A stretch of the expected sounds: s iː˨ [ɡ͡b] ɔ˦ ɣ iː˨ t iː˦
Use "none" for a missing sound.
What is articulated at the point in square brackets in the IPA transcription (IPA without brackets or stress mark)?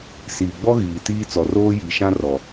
ɡ͡b